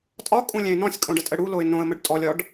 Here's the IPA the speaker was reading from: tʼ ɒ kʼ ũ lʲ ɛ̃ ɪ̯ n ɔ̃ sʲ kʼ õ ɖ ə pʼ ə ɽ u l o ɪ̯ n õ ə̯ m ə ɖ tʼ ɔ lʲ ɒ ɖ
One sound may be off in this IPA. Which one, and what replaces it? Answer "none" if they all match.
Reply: pʼ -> tʼ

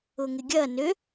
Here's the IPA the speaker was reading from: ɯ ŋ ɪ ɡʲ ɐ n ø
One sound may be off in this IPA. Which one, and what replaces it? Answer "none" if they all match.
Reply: ɯ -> ʊ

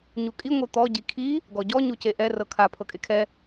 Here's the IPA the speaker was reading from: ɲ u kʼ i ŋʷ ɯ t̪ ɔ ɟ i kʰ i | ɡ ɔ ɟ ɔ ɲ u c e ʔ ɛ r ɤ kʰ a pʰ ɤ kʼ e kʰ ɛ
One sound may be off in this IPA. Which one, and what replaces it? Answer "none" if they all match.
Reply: none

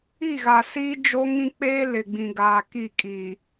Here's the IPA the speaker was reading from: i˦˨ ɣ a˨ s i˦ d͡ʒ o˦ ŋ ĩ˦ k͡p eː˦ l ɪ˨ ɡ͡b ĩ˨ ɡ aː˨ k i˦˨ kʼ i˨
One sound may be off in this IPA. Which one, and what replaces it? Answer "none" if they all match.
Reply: none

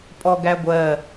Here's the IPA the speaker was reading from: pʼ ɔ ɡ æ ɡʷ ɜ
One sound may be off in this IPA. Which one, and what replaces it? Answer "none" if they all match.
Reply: none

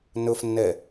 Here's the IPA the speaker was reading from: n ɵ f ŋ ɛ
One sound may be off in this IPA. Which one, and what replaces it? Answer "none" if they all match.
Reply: ŋ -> nː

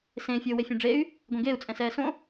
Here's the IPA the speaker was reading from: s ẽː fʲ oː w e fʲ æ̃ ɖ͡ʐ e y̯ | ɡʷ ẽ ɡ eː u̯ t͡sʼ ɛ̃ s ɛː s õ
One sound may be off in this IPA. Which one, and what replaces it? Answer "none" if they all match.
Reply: none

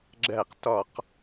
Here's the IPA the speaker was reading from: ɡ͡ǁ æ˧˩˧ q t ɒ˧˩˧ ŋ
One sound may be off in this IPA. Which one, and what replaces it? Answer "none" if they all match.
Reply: ŋ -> q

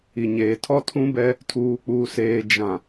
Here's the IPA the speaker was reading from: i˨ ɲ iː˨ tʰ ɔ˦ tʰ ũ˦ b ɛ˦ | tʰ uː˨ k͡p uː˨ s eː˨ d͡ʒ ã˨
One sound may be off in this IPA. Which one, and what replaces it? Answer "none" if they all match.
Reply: iː˨ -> eː˨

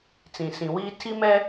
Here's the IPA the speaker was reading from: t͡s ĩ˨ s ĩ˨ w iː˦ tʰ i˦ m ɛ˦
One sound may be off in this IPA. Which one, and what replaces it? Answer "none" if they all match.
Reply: none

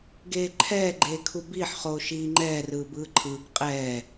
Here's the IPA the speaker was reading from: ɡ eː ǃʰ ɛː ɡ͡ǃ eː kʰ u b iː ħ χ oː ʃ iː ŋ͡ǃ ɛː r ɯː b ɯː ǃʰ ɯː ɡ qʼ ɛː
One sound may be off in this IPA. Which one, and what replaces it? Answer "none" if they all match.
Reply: none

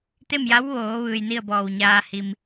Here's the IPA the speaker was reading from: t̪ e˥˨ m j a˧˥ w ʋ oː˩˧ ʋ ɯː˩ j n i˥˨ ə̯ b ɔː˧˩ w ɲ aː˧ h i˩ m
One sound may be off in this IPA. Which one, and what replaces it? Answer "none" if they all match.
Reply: none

